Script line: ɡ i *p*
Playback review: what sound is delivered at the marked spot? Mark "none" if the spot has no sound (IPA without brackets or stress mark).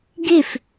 f